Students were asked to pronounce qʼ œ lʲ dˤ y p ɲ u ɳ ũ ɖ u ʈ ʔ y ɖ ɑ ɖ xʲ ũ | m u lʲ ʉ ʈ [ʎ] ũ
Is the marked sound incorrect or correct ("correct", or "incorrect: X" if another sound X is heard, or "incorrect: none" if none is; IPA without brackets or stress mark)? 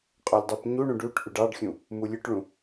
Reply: incorrect: ɭ